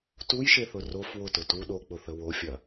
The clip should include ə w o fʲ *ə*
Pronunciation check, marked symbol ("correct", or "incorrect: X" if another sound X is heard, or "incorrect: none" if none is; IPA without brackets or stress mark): incorrect: ɐ